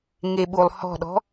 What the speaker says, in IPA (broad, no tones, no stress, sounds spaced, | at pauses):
ŋ e ɓ u lˠ h ɔ̤ ɗ ɔ̤